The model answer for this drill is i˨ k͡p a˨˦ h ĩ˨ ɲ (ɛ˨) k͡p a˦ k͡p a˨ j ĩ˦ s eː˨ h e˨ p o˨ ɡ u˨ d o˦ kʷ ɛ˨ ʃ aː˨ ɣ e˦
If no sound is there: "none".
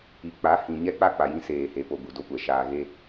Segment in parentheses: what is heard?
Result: ɛ˦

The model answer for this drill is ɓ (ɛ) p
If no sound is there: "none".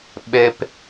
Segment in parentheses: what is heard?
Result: ɛ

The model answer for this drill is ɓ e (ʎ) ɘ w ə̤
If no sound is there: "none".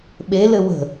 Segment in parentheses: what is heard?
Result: l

